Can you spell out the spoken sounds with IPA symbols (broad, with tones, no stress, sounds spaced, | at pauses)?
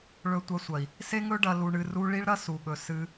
ɭ ɵ˧ tʷ ɐ˧ sʷ ɐ˨ i̯ | s e˦ ŋ ɵ˦ ɖ ɐ˧ l u˧ ɳ ɨ˧ r u˦ ɭ i˦ ɭ ɾ ɐ˦ s u˨ ɠ ɵ˨ s ɨ˧